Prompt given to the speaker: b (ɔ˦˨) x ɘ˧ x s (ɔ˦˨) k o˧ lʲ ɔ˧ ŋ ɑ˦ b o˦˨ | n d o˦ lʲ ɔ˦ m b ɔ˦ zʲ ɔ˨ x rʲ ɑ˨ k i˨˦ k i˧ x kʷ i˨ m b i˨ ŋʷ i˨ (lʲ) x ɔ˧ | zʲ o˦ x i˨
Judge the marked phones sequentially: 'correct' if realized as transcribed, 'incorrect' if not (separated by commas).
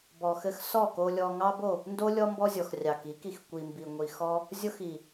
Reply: incorrect, correct, incorrect